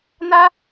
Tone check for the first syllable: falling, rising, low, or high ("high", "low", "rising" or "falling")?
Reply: high